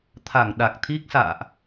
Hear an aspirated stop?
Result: yes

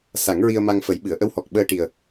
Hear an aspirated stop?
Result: no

